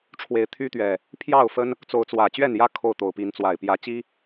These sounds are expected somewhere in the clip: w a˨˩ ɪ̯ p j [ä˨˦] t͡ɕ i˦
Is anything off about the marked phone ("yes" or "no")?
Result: no